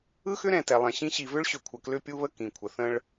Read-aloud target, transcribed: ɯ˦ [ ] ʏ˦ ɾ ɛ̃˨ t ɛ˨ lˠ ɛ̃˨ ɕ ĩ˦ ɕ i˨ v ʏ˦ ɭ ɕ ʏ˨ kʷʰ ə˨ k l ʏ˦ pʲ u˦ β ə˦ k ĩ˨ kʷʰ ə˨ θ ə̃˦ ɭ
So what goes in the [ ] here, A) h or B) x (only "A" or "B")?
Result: B